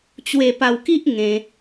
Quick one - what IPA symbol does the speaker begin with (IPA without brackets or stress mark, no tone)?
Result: t͡ɕ